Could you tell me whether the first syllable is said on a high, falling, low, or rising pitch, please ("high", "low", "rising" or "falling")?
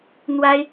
high